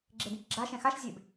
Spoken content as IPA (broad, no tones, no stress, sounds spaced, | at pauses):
ɡ͡ǁ e d ĩ k ɡ͡ǁ a ʃ ɛ̃ x a ʃ zʲ e b